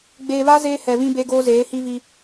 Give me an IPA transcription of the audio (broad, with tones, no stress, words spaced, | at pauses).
ɡ͡beː˨βa˦ zeː˦hɛ˨ βĩ˦be˦ ɡoː˦zeː˨˦hi˦ vi˦